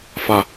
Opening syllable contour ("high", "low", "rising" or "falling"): low